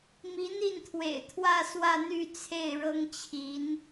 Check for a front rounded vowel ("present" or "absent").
present